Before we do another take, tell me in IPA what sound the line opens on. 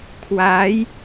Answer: kʰ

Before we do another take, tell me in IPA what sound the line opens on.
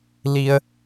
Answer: l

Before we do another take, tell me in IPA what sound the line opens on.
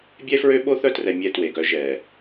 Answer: bʲ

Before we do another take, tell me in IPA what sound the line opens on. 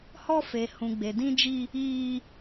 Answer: h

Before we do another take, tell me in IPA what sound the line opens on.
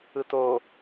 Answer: ɯ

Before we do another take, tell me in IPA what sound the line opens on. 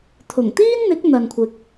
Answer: t̪ʰ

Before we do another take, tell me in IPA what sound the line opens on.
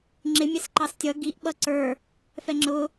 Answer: ŋ͡ǁ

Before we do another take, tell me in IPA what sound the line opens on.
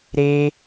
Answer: ɾ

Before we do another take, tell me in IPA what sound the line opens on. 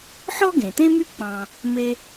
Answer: ħ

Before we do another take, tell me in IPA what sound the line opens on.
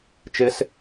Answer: t͡ʃ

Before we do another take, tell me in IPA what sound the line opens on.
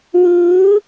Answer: w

